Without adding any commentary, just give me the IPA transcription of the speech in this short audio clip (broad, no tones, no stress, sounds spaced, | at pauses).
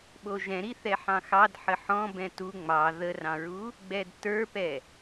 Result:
ɓ o ʒ ɛ̃ ɾ i θ ɛ ħ ɑ̃ x ɑ d ħ ə ħ ɔ̃ b ɛ̃ t u ŋ͡m ɑ ð ə r ɑ̃ ɹ u | ɡ͡b ɛ d t ə˞ p ɛ